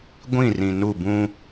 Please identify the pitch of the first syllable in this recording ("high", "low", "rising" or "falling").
falling